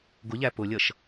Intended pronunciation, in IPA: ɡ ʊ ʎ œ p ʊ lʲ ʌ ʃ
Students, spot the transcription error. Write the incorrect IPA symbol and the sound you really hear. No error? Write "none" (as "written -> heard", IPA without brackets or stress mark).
œ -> æ